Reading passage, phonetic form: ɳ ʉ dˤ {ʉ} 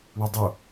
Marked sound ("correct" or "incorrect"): incorrect